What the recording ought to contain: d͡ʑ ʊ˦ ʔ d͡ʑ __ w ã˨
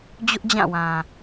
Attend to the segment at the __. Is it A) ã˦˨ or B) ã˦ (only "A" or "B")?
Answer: A